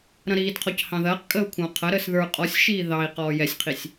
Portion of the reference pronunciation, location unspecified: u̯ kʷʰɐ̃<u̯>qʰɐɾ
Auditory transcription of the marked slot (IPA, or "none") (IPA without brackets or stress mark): u̯